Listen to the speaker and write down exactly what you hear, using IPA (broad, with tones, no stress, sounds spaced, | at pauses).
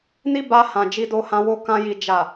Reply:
n i˦ b a˧ h ã˨ d͡ʒ i˧ d o˧ h ã˧ w o˧ k ã˧ j i˨ d͡ʒ a˨